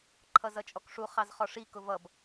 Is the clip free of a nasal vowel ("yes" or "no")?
yes